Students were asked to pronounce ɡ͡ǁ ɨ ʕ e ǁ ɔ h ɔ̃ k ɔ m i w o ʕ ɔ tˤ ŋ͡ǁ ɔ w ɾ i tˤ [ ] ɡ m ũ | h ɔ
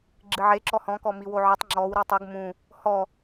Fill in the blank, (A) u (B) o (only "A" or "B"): B